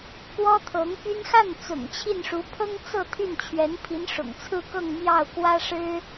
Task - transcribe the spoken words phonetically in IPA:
k w ɔ˥ t̪ʰ ɤ˧˥ ŋ p y˥ n x a˥˩ n t͡s ʊ̰˨˩ ŋ t͡ɕʰ i˥˩ n ʂ u˧˥ pʰ ɤ˥ ŋ t͡s ɤ˥˧ t̪ʰ y˥˩ n t͡ɕʰ ɥ ɛ˧˥ n pʰ i˧˥ n ʂ ʊ̰˨˩ ŋ t͡sʰ ɹ̩˥˧ k ɤ˥˧ ŋ m j ɑ˥˩ ʊ̯ k w ä˥ ʂ ɻ̩˥

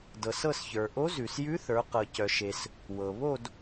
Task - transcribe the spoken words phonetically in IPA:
d ɤ˩ s ɤ˦˨ s ç ə˞˩ ʔ o˧˥ z ʉ˩ s j ʉ˧˥ θ ə˞˩˧ q ɤ˩ c œ˩ ʃ e˩ s | w ɤ˩ β o˦˨ d

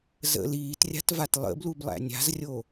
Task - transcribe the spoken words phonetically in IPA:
z ə̰ l iː t rʲ a̤ t v a t lˠ ə̰ b l u b lˠ æ̰ nʲ a̤ z rʲ o

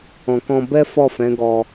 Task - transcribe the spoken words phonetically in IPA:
ɔ̃˨ k ɔ̃˧ b ɛ˦ f ɔ˦˨ f ɛ̃˨˦ ɡ ɔ˧

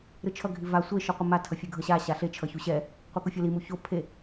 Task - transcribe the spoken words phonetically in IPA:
ɾ ɯ t͡ʃʰ ʌ ɡʱ i v a sʷ e ʃ ɯ qʷ ɯ m a tʰ ʌ fʲ ɯ ɡʱ ʌ ɕ a ɕ a ɬ e t͡ʃʰ ʌ ç u ɕ ɛ | qʷ ɛ k u fʲ o l i m u ç o pʰ e

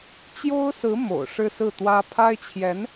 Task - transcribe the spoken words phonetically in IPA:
t͡ɕ j o˥ ʊ̯ s ɹ̩˧˥ m o̰˨˩ ʊ̯ ʂ ɻ̩˥ s ɹ̩˥˩ t̪ w ä˥ pʰ a˥ ɪ̯ t͡ɕʰ j ɛ˧˥ n

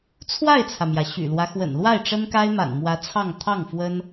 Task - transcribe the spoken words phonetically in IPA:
t͡sʰ w a˥˩ ɪ̯ t͡sʰ ä˩ m j ä˩ ɕ y̰˨˩ l w ä˦ x w ə̰˨˩ n l w a˥˩ ɪ̯ ʈ͡ʂ ə˥ n k a˥ ɪ̯ m a̰˨˩ n m w ä˧˥ t͡sʰ ɑ˥˧ ŋ t̪ʰ ɑ˥˩ ŋ f w ə˥ n

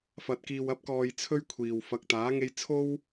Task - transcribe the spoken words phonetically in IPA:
f ɐ˨ t̚ k iː˨ w ɐ˧ p̚ k ɔː˨ j t͡sʰ ɵ˥ ɥ kʷʰ iː˨ w f ɐ˨ k̚ t̪ aː˨˥ ŋ e˧ j t͡sʰ o˥ w

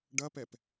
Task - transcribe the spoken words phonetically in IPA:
ɖ ɐ p ɛ p

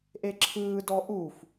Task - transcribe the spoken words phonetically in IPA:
ʔ e ǁʰ ɯː d ɔ ʔ u f

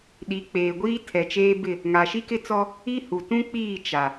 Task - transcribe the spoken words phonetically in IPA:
ɗ i˨˦ k͡p eː˨ ɡʷ iː˦ tʰ ɛ˨ t͡ʃ eː˦ b ɪ˦˨ | ŋ a˨ ʃ i˦ k ɪ˦ t͡s ɔ˦ | i˦ h u˨ t ũ˦ k͡p iː˦˨ t͡ʃ a˨

